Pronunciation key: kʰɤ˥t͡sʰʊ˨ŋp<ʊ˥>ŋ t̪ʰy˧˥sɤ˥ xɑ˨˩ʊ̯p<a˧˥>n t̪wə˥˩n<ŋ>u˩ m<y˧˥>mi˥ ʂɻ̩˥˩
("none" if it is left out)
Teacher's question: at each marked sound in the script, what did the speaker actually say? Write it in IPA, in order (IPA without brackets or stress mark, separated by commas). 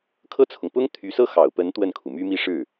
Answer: ʊ˥, ə˧˥, kʰ, y˥